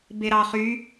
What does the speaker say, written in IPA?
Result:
b e ɾ ɑ χ y

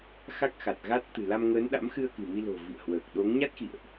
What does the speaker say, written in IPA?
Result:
x a˦˥ k̚ x a˨˩ t̚ ɣ a˦˥ t̚ t̪ ɨ̤˨˩ l a˧ m ŋ əː˨˦ n ɗ a̰˧˥ m x ɨ˧ ə̯ k ɨ̤˨˩ m i˧ l o̤˨˩ v ḭ˧˨ ə̯ h w əː˨˩ k̚ ɗ o˨˦ ŋ ɲ a˦˥ t̚ x ḭ˧˨ ə̯ ʔ

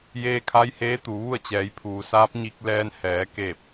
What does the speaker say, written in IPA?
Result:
j eː˧ kʰ a˧˥ j h eː˧˥ t̪ u˩˧ ʋ u˥˨ ə̯ t͡ɕ ɛː˩˧ j pʰ uː˩ s aː˧˥ p̚ ɲ i˧ k̚ l ɛː˧ n h ɛː˩˧ k eː˧˩ p̚

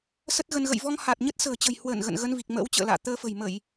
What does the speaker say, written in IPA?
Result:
s ə˦˥ t̚ ɣ ə˧ n ɣ ə̰˧˨ j v ɔ˧ ŋ h a˨˩ t̚ ɲ ə˦˥ t̚ s ə̤ː˨˩ t͡ɕ ə̤˨˩ j h w əː˧˩ n ɣ ə̰˧˨ n ɣ ə˧ n v i˨˩ k̚ m ə̰ː˧˥ w t͡ɕ ə̰ː˧˨ l a̰ː˧˨ t̪ əː˧ f ə̤˨˩ j m ə˧˩˨ j

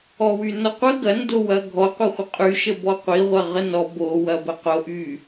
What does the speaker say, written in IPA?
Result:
ɔ w y n ɔ qʷ ə ɡ ɐ n d o w ɐ ɡʱ ɔ qʷ ɐ χʷ ə qʼ y ʃ ə b ɔ qʷ i ʁʷ ɐ ʁ ə n ɔ b o w ɐ b ə q o ʔ y

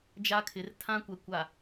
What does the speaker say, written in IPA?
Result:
d͡ʒ a˦ kʰ ɪ˨˦ r tʰ ã˦ kʷ ɛ˨ kʷ a˨

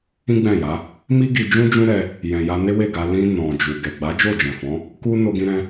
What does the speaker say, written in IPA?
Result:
ĩ˦ ɡ͡b ɛ̃˦˨ j a˨˦ | m i˦ ɡ i˧ d͡ʒ ũ˦ d͡ʒ ũ˦ ɾ ɛ˧ | j ɛ̃˨ j a˧ n e˦ w e˦˨ ɡ a˧ l ĩ˧ n ɔ̃˨ d͡ʒ u˨ ɡ ɛ˨ ɡ͡b a˨˦ d͡ʒ o˦˨ d͡ʒ ɛ̃˨ f ɔ̃˨˦ | k u˦ n o˧ ɡ ĩ˧ ɾ ɛ̃˦

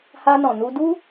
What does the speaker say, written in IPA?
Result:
h a˧ n ɔ̃˨ n u˧ d u˦

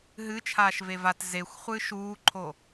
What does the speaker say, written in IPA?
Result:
ɦ ɨ t͡ʃʰ aː ʃ v e v a t z e xʷ χʷ ɨː ʃ uː ǃʰ o

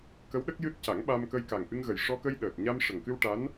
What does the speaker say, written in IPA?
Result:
k ə˧˥ w ɗ ə˦˥ k̚ j ɨ˦˥ t̚ c a˨˩˦ ŋ ɓ a˧ m k ə˧ j k a˨˩ ŋ ʔ ɨ˧ ŋ ɣ ə˨˩ j ʂ ɔ˧ k ə˧ j ɗ əː˨˩ t̚ ɲ a˧ m ʂ ə˨˩ ŋ k ɨ˧ w ʈ a˧˥ n

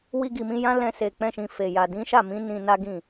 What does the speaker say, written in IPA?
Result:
w i˧ ɡ i˨ m ĩ˧ j ã˦ l ɛ̃˧ s e˨ k͡p ɛ̃˧ ʃ ĩ˨ f e˨ j a˨ d ĩ˨˦ ʃ a˦˨ m ĩ˨˦ n ĩ˧ n a˦ ɡ ĩ˦˨

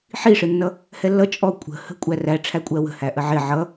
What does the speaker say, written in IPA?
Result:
ħ i ʂ ɪ nː ʌ | h ɛ lː ʌ t͡ʃʼ ɔ kʷʼ ə̤ h ə̤ kʷʼ æ r æ ʈ͡ʂʰ æ kʷʼ ɜ w ə̤ h æ ʔ ə ʕ ɪ ʕ ʌ

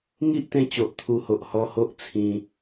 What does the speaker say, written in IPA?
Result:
ŋ i˦ ʔ t̪ ẽ˧ t͡ɕ o˨ ʔ t̪ʰ u˧ h o˨ ʔ h ɔ˧ h o˦ ʔ t͡sʰ ĩ˧

